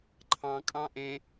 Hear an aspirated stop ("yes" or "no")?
yes